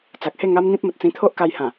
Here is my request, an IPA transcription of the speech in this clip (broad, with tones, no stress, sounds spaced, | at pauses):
t͡s a˨ k̚ h e˥˧ ŋ a˦ m n̪ ĩ˦ p̚ m ə˨ t̚ t͡s ĩ˧ t̪ʰ o˦ ʔ k a˧ j h ã˨˩